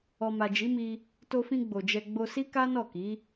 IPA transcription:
ɔ˨ m a˨ d͡ʒ i˨˦ m i˧ | t o˧ f ĩ˧ ɡ͡b o˨ d͡ʒ ɛ˧ ɡ͡b o˧ s i˦ k a˦ n ɔ˦˨ k i˨˦

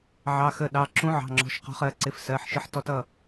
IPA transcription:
ʕ ɑ˩˧˩ x ə˩˧˩ ɗ ɑ˩˧˩ ǁ ũ˨˥ ʕ ɑ̤˩˧˩ ŋ͡ǁ ɔ̤˩˧˩ ʃ q ɔ̤˨˥ χ ɜ˩˧˩ ǀ ɪ˨˥ f s ɜ˩˧˩ ħ ʃ ɪ˨˥ ħ t ɔ˨˥ t ʌ˩˧˩

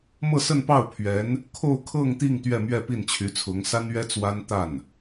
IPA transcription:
m ɤ˥˧ s ə˥˧ n p ɑ˥˩ ʊ̯ pʰ ɥ ɛ˧˥ n | kʰ o˥˧ ʊ̯ kʰ ɤ˥˧ ŋ t̪ i˥˧ ŋ t̪ ɥ ɛ˥˧ m ɥ ɛ˥˧ p i˥˩ n t͡ɕʰ y˧˥ t͡sʰ ʊ˧˥ ŋ s a˥ n ɥ ɛ˥ t͡s w a˥ n t̪ a˥˩ n

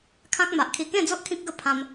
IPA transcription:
kʰ ã˦ k̚ m a˨ ʔ kʰ i˧ k ẽ˥˧ d͡z o˦ ʔ kʰ ĩ˦ k̚ ɡ ə˥˧ pʰ ã˧ m

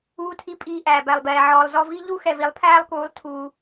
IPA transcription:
uː˦ tʰ i˦ pʼ iː˧ ʔ æː˨ b æ˨ lˠ b ɛː˨ ʕ ɔː˨ lˠ z ɔ˧ v i˦ ʎ u˦ x ɛ˨ v i˨˦ lˠ pʰ æː˦ lˠ k uː˨˦ lˠ tʰ uː˧

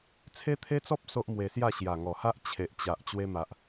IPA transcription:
t͡sʰ e˦ t̪ʰ e˦ t͡s ɔ˦ p̚ s o˦ ʔ m w e˧ s j a˥˧ ɕ j a˨˩ ŋ ɔ˨˩ h a˦ ʔ t͡ɕʰ e˨ ʔ t͡ɕ a˨ ʔ t͡ɕ w e˧ m a˨ ʔ

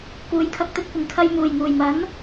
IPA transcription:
k uː˨˥ j kʰ ɐ˨˥ k̚ t̪ ɵ˨ t̚ kʷ ɪ˨˩ ŋ kʰ ɐ˧ j m uː˨˩ j ŋ uː˨˩ j m ɐ˨˥ n

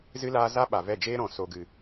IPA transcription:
z ɨ˦ l aː˦ z a˦ ɓ a˨ v ɛ˦˨ d͡ʒ eː˦ ɾ ɔ̃˨ s o˨ ɡ ɨ˨

